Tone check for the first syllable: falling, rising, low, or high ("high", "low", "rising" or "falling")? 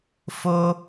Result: high